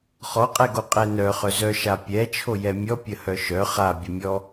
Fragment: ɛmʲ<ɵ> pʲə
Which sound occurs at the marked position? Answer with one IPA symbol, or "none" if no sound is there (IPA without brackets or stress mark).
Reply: ɔ